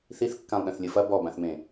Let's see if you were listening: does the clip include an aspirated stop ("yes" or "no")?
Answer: no